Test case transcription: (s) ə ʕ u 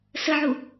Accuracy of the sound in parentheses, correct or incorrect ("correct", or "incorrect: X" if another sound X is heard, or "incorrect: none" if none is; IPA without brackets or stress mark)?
correct